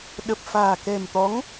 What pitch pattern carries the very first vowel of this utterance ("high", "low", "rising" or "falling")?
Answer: low